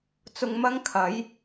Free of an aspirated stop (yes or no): no